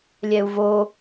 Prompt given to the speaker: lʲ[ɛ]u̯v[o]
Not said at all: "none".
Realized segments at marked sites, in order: ɛ, o

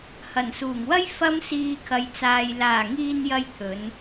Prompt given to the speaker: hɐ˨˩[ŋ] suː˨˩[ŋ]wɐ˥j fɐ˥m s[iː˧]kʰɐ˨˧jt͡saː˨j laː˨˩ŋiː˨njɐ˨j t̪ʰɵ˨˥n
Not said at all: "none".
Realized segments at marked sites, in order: n, ŋ, iː˧

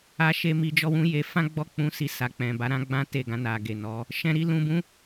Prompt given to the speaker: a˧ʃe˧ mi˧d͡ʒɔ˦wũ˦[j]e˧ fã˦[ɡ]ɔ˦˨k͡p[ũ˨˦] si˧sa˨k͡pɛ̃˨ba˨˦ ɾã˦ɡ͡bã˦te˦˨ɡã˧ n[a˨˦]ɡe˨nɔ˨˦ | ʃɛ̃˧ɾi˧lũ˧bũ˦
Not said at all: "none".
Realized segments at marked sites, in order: j, ɡ͡b, ũ˨˦, a˨

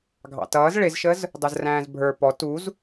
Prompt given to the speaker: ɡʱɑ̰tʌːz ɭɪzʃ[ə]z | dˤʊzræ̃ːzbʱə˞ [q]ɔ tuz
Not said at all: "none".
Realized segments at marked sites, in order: ə, p

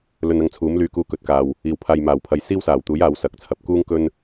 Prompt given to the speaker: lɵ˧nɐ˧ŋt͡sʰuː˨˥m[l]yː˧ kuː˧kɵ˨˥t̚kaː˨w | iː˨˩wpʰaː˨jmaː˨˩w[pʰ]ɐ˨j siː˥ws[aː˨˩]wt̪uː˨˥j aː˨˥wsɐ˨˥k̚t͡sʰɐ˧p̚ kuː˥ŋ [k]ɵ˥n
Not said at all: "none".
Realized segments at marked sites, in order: l, pʰ, aː˨˩, k

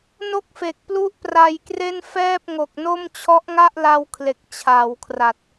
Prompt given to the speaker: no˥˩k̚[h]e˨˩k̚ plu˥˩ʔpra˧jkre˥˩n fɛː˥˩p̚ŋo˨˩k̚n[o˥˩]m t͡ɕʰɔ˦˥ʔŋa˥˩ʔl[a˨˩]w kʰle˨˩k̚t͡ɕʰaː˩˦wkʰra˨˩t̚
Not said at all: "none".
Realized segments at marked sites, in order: f, o˥˩, a˧

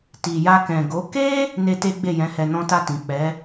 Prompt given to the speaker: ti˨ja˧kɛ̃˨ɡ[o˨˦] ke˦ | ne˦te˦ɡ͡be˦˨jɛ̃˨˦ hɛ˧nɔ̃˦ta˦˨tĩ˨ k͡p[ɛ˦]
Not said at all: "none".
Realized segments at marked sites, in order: o˨˦, ɛ˨˦

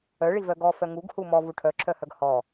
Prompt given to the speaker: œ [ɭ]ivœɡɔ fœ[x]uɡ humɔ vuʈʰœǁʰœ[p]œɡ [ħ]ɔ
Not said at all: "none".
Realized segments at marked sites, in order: ɭ, ŋ, h, h

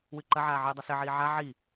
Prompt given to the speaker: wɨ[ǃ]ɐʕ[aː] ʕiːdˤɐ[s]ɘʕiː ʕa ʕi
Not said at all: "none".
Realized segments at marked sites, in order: ǃ, aː, s

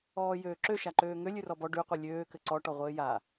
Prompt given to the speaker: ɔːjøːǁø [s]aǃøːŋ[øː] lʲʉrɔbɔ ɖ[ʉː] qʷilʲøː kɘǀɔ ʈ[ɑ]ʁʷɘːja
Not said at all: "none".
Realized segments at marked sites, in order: ʃ, ø, ʉ, ɔ

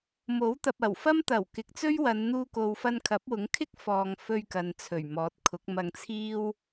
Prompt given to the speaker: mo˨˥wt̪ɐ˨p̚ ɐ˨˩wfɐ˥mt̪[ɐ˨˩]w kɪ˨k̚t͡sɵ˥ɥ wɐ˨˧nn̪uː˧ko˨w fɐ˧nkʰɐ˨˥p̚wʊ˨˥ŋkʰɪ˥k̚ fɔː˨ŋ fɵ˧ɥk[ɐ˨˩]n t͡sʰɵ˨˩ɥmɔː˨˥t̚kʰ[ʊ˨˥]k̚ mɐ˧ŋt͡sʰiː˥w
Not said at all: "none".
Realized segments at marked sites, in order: ɐ˨˩, ɐ˨, ʊ˨˥

